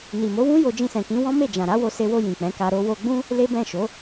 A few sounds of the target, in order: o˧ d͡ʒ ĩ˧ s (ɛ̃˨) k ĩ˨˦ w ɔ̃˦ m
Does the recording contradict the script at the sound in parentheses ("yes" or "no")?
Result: no